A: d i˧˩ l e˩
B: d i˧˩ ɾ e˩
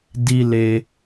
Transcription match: A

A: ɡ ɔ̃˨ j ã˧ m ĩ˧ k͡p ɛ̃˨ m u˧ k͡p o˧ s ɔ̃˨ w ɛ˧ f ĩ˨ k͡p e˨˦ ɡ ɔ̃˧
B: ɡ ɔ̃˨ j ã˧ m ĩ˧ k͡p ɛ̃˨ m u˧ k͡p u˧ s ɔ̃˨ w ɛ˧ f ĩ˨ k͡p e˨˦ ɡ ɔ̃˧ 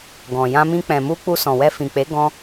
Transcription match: B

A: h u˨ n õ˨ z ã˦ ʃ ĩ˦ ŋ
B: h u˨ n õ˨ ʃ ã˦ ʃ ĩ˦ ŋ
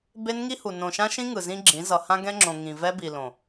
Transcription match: B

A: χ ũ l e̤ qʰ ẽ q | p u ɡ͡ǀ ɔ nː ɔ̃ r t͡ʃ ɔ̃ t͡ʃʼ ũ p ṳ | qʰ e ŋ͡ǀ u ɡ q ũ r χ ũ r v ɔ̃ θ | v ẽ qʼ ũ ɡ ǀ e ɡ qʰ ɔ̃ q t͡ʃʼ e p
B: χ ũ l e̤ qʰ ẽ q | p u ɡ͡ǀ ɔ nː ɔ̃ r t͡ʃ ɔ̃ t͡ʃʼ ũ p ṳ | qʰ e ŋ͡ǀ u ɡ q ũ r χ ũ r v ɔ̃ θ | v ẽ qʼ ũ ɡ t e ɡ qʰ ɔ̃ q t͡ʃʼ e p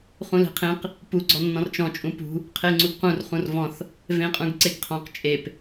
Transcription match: A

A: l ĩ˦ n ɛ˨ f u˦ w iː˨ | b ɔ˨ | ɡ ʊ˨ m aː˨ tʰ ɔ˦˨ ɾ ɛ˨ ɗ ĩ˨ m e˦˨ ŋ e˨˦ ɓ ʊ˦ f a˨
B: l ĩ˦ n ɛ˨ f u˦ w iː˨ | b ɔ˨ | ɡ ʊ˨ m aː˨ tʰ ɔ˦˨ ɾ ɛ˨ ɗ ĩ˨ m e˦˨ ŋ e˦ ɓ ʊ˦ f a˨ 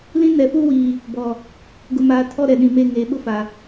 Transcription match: A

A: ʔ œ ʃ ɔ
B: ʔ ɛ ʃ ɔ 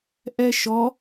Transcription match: B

